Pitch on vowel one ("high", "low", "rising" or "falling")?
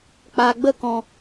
low